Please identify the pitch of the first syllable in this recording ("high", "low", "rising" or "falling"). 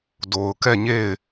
low